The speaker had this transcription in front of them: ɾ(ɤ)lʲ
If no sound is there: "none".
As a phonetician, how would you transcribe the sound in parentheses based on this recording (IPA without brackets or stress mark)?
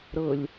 ɤ